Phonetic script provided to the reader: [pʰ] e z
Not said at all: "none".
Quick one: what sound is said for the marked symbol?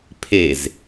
pʰ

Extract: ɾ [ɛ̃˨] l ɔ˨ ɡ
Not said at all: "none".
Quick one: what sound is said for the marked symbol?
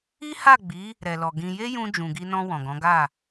ɛ˨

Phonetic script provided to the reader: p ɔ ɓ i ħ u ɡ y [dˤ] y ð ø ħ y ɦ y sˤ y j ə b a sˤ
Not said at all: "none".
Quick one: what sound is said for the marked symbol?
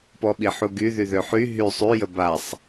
ð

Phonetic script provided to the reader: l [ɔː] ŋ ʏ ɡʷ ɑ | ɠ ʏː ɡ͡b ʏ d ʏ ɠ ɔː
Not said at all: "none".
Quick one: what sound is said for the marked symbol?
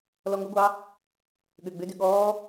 ɔ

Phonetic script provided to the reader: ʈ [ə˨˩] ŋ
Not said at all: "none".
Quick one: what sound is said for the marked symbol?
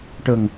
ə˨˩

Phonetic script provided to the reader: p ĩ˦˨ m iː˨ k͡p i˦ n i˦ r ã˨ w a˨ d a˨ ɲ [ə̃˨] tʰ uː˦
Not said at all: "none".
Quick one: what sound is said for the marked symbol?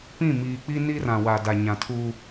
ã˨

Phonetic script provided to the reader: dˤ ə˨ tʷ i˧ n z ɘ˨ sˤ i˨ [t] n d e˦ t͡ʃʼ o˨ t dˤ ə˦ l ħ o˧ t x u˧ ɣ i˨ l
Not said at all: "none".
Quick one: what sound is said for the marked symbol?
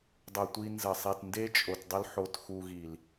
t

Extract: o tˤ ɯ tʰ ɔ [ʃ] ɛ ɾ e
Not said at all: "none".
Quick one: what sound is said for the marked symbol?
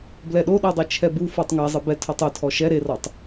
ʃ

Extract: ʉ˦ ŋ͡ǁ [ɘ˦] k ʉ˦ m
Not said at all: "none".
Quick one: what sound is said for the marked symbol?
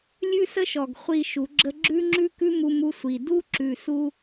ʉ˦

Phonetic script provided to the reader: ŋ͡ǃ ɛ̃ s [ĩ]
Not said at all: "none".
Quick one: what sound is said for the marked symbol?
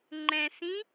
ĩ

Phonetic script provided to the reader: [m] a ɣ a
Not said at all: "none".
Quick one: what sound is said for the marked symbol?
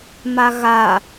m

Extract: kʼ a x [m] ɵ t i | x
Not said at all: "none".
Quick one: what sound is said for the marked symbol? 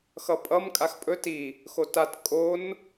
pʼ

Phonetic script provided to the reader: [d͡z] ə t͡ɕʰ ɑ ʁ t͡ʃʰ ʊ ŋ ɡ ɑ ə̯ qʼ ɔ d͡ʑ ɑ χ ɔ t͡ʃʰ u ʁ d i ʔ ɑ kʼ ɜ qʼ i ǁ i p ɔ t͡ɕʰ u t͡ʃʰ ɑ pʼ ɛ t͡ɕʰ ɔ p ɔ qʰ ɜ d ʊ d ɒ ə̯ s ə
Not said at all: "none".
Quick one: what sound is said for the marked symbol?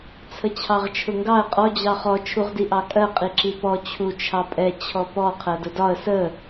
t͡sʰ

